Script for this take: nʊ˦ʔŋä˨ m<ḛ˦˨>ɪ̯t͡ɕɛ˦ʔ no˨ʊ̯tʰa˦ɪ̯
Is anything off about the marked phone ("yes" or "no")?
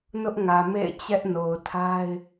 no